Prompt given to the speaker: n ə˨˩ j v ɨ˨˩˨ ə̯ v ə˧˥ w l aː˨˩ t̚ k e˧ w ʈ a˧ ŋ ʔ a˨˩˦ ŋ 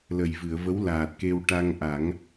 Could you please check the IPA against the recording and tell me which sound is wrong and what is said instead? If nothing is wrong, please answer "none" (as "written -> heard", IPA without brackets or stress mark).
n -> l